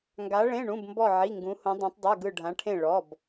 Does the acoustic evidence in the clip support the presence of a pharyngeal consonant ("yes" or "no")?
yes